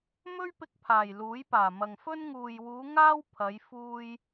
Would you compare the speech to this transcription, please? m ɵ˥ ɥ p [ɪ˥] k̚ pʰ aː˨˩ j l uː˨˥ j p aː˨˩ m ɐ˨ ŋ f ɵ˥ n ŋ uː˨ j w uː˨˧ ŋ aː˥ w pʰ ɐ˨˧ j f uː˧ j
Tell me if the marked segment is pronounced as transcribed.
no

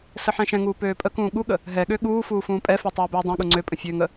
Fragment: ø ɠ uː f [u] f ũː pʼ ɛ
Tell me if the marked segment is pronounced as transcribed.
no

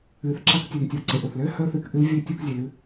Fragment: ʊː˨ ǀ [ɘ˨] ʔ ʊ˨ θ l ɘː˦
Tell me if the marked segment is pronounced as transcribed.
yes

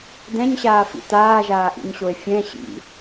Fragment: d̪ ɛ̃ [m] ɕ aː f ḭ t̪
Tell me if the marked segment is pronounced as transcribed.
no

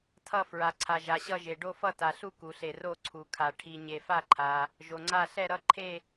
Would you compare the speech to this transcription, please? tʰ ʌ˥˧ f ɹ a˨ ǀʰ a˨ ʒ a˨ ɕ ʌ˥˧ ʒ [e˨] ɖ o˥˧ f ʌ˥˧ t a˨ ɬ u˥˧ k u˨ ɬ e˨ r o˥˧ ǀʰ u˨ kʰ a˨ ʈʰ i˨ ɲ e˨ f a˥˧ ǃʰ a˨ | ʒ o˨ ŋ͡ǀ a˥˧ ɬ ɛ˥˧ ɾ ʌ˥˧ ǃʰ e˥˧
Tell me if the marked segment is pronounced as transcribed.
yes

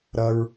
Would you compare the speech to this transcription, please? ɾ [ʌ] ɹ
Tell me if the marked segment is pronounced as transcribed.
yes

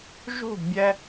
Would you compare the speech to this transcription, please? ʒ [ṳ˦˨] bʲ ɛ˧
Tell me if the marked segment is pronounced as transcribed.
yes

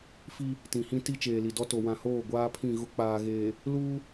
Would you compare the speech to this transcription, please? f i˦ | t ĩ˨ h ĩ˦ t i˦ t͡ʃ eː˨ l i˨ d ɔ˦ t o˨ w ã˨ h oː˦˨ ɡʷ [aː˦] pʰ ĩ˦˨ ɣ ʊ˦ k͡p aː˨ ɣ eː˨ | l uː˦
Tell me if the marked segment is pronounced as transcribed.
yes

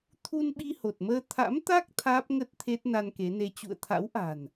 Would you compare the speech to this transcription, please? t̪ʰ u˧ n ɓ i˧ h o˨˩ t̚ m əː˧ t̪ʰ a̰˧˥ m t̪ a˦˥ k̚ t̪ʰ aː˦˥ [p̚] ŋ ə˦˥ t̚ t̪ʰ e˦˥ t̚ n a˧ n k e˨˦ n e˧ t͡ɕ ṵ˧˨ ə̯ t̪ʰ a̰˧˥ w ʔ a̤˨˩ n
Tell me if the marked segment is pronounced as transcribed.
yes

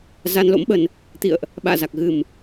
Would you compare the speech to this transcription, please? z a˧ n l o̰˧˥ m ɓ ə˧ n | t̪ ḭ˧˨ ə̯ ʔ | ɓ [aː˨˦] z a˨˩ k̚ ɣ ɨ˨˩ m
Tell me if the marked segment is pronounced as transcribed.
no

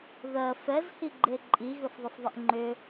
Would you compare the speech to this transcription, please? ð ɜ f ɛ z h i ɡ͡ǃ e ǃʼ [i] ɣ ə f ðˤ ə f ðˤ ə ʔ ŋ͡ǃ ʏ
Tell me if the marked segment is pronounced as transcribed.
yes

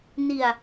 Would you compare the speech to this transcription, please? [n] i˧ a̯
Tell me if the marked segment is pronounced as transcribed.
yes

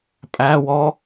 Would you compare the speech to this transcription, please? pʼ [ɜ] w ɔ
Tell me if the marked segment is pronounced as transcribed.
no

